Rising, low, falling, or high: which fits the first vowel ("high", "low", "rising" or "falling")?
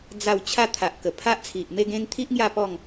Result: falling